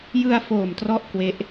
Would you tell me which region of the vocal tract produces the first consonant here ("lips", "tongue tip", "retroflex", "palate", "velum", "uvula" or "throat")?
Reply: palate